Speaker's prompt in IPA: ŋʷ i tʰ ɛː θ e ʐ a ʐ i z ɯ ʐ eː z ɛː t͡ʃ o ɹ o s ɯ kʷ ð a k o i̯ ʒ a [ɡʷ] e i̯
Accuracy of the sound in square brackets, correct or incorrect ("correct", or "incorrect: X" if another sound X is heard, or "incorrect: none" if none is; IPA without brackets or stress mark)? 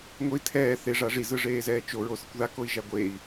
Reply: correct